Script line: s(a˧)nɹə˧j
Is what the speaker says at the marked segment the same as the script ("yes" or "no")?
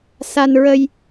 yes